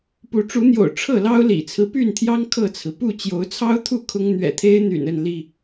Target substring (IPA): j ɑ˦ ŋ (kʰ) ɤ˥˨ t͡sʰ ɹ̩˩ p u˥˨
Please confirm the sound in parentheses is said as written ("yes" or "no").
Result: yes